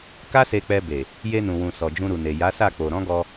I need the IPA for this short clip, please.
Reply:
k a˦ s e˧ k͡p ɛ˧ b e˨ | j e˧ n ũ˨ w ũ˨ s ɔ˨ d͡ʒ ũ˧ ɾ u˨ n e˨ j a˨˦ s a˦˨ k͡p o˨ ɾ ɔ̃˨˦ ɡ ɔ˧

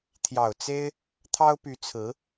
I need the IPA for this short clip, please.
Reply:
t̪ʰ j ɑ˨˩ ʊ̯ t͡s e˥ ɪ̯ | t̪ʰ ɑ˥ ʊ̯ p y˧˥ t͡sʰ ɹ̩˧˥

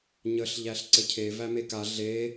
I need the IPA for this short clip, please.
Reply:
ɲ ə ɬ ʎ æ ɬ ǀ ɘ cʰ e v æ m e k a ɮ e

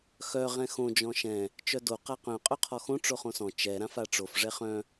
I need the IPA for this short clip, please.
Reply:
x œ ʁ ɛ̃ x õ d͡ʒ ɔ̃ ʃ ɛ̃ | t͡ʃ œ d o q a q œ̃ qʼ œ qʰ ɔ x õ ʈ͡ʂ o χ õ s ɔ̃ t͡ʃ ɛ ɾ ã f a ʈ͡ʂ o f ʐ ɛ χ œ̃

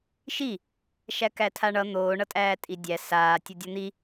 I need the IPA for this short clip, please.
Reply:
ʃ i | ʃ æ k æ tʰ a ɳ ʌ n̪ oː ɳ ʌ tʼ æː tʼ i dʲ æ s aː tʲ ʌ dʲ ʌ n̪ i

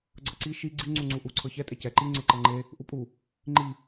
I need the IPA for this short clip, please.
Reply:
ɡ͡ǀ ɤ ǀ i ʃ i ɡ͡ǀ i ŋ͡ǀ u ŋ͡ǀ u ʔ u ǀʰ ɤ ç ɛ tʼ e c ɛ ǃ i ŋ͡ǀ e ǃ ɤ ŋ͡ǃ e | ʔ u pʼ u | ŋ͡ǃ i

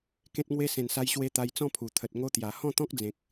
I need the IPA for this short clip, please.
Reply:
k ẽ˦ t̚ ŋ w e˦ s ẽ˨˩ n s a˧ j ɕ w e˧ t̪ a˧ j t͡s ɔ̃˥˧ pʰ u˨˩ t̪ʰ ə˨ t̚ ŋ o˦ t̪ j a˨˩ h ɔ̃˥˧ t̪ ɔ̃˦ k̚ d͡z ẽ˨ k̚

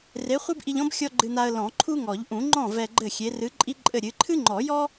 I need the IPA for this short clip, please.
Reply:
r e˨˥ χʷ ɨ˥ b ʔ i˧ ʎ ɔ̃˥ b xʲ ɔ˥ ɡ͡ǃ ɨ˧ n a˧ ə̯ l ɔ̃˨˩˦ ǃʰ u˥ ŋ ɔ˨˩˦ ʎ ʔ ũ˨˩˦ ŋ͡ǃ ɔ̃˥˩ v ɛ˧ ɡ͡ǃ ɘ˥˩ xʲ e˨˥ r ɨ˨˥ ǃʼ i˥ ǃʼ ɘ˥˩ ɾʲ ɨ˨˥ ǃʰ ɨ˥ ŋ͡ǃ ɔ˨˩˦ j ɔ˥

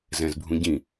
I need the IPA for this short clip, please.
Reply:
z ɛ̃ z bʱ ũ ɟ ĩ

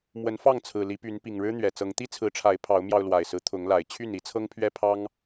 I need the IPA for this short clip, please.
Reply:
m w ə˨˦ n f ɑ˥˨ ŋ t͡sʰ ɹ̩˨˩ l i˨˦ p y˨˦ n p i˨˩ ŋ ɻ ɻ̩˦ n̪ ɥ ɛ˨˩ t͡s ɤ˨˦ ŋ t̪ i˦ t͡sʰ ɹ̩˨˦ ʈ͡ʂʰ a˨˦ ɪ̯ pʰ ɑ˨˦ ʊ̯ m j ɑ˧ ʊ̯ l w a˨˩ ɪ̯ s ɹ̩˦ t̪ʰ ʊ˨˦ ŋ l a˨˩ ɪ̯ t͡ɕʰ y˥˨ n i˨˦ t͡sʰ ɤ˦ ŋ pʰ ɥ ɛ˦ pʰ ɑ˦ ŋ

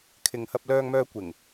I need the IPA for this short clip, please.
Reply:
kʰ ɪ˨ ŋ h ɐ˧ p̚ l œː˧ ŋ m œː˧ kʷ ɪ˨˩ ŋ

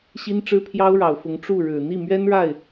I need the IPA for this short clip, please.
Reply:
ɕ i˥ n ʈ͡ʂ ɻ̩˥ pʰ j ɑ˥ ʊ̯ ɻ ɑ˨˩ ʊ̯ f ʊ˧˥ ŋ ʈ͡ʂ u˥˩ ɻ ɻ̩˨˩ n̪ i˥˩ m ɥ ɛ˥ n ɻ a˥˩ ɪ̯

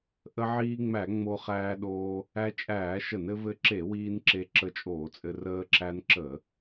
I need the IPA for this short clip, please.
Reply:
ʔ ə˧ ʕ iː˧ ŋ͡m æ˧˩˧ ŋ͡m o˧ χ æː˧ ɗ oː˧ | æ˧ t͡ʃʼ æː˧˩˧ ʃ ə˧˩˧ n ɘ˧ v ɘ˧ ǁ e˧˩˧ w iː˧ n ǁ e˧ ǁ ə˧ t͡ʃʼ oː˧˩˧ t͡sʼ ɘ˧ r əː˧ ǁ æ˧ n ǁ ə˧˩˧

